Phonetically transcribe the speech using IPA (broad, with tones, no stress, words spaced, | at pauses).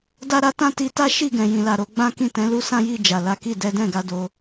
da˦ɾa˦ tã˦˨ti˧ta˦ ʃi˦˨ɡɛ̃˨ jĩ˨la˨ɾo˨˦ ɡ͡bã˦kĩ˦˨ tɛ̃˨˦lu˦sã˦ji˦˨ d͡ʒa˨la˨˦ki˦˨ dɛ˨˦dɛ̃˦˨ɡa˧ do˧